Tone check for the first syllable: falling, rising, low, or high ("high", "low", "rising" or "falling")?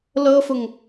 high